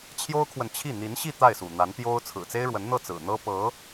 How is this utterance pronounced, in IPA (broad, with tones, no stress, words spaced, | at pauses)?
t͡ɕʰjo˥ʊ̯kʰwə˨nt͡ɕʰi˥˩ n̪i˧˥nɕi˥˧ t̪a˥˩ɪ̯sṵ˨˩ n̪a˧˥nt̪jo˥ʊ̯ t͡sʰɹ̩˨˩t͡se˥ɪ̯ɻwə˧˥nn̪ɤ˥˩ t͡sɹ̩˨˩n̪ɤ˥ pɤ˧˥